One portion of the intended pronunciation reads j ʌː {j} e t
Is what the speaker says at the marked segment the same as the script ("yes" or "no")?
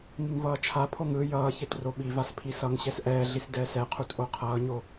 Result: no